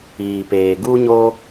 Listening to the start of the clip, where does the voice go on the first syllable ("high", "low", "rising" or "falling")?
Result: low